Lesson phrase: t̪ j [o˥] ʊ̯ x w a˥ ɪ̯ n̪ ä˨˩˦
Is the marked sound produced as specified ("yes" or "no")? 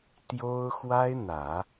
yes